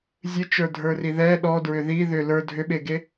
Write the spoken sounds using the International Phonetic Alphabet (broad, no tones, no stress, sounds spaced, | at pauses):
zʲ ɨ t͡ʃ ə˞ dʱ ə˞ r i ð ɛ ɗ ɔ d ɹ ʏ ð i ð ʏ l ə˞ dʱ ʏ ɓ e ɡ e